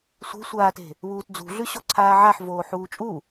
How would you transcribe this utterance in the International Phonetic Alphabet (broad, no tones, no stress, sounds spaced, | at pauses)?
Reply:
sʷ e̤ sʷ aː t e̤ | β uː t d͡z ṳ ɮ ʉ ɕ o ǀʰ aː ʕ a ħ v oː ħ uː t͡ʃʼ u